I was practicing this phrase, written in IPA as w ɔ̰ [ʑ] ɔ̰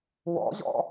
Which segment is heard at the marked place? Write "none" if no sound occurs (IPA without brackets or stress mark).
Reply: ʑ